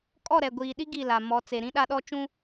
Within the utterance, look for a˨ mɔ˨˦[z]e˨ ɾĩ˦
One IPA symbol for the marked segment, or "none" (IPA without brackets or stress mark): t͡s